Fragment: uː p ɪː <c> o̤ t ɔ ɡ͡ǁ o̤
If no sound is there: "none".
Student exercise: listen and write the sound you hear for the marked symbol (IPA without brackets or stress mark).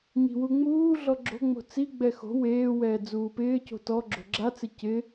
c